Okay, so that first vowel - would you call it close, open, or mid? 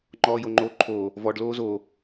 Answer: mid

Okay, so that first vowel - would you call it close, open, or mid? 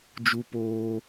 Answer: close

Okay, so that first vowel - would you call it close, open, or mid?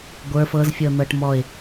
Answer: mid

